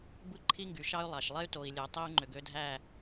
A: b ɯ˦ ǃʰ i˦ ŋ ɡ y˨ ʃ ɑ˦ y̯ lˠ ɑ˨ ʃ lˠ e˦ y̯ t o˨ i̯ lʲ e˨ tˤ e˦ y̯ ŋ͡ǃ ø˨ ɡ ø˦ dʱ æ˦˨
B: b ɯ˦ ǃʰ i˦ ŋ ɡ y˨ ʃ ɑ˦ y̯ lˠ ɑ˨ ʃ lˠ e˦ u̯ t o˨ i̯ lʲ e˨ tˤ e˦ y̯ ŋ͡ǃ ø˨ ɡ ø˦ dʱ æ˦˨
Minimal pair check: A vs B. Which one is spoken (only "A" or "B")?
A